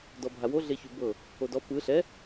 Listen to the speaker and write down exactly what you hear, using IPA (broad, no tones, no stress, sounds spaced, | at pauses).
d ɔ bʱ a w o ɮ e ç u b ɤ | o d ɔ p ɯ ɬ ɛ